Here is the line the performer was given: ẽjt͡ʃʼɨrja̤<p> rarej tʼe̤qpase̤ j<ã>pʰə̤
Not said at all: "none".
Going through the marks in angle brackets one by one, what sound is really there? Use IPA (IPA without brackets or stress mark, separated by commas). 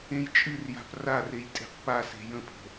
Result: p, ə̃